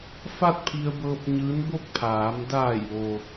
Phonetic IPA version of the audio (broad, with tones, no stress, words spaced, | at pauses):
fa˥˨t̚pʰi˧ə̯bɤː˧p̚ ɲɯː˧˥nbo˥˨k̚pʰaː˩˧m daː˧˩jʋo˩